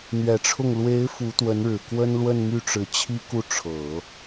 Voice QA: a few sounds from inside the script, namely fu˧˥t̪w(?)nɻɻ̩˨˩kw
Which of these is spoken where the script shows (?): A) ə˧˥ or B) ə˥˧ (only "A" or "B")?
A